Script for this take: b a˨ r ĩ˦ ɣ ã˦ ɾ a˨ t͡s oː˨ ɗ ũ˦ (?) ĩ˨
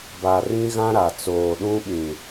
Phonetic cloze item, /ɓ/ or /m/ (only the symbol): ɓ